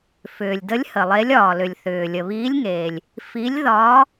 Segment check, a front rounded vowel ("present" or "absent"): present